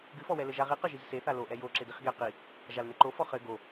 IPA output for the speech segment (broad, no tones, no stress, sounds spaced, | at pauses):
ɡ ɨ f ɔ w ɛ l ɘ ʒ a ʁ i q ɘ ʒ i z s e θ a l o ʔ ɛ j o ǁ e d i χ ɡ e q i | ʒ a l n e ǃ o f ɔ χ ɘ ɡ o